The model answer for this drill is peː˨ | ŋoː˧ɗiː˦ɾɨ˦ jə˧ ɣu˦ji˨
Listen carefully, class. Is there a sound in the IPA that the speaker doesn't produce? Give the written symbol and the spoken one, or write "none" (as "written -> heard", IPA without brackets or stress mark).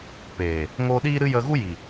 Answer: none